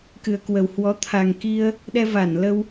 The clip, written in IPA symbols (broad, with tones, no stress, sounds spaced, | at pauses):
k ɨ˨˩ ə̯ k w ə˨˩ w h w ɔ˨˦ t̪ʰ a˨˩ ŋ k i˧ ə̯ | ɗ ɛ˧ v a˧˩ n l ə˧ w